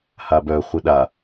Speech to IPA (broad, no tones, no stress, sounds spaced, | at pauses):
h a b œ χʷ i ɗ a